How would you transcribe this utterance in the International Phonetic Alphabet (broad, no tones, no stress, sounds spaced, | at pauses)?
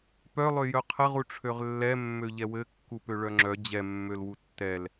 p œ lˠ ø j œ qʰ ɘ ʁ u ʈ͡ʂʰ ø ʁ lː ɛ mː ø ʎ ɛ w ɘ kː u p ø ɭ œ ŋ͡ǁ œ d͡ʑ ɛ mː ø l w u tː ɛ l